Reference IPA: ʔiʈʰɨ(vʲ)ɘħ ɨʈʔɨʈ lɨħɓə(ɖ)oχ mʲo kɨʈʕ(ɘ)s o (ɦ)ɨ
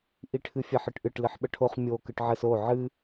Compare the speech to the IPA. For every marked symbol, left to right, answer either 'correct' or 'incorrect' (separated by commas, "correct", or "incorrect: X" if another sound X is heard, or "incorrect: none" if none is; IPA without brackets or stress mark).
incorrect: fʲ, incorrect: ʈʰ, correct, incorrect: ʕ